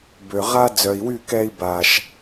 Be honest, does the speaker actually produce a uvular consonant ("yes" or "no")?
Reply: yes